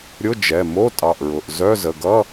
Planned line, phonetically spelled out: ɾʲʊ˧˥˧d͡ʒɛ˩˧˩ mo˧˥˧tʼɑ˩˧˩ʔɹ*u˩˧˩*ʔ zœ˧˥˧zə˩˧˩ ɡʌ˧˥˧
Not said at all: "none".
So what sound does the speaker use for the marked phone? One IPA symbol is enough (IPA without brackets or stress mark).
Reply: ʊ˩˧˩